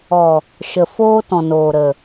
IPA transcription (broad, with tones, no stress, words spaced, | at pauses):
ɔ˨ | ʃə˨foː˦tɔ̃˨noː˨ ɾə˨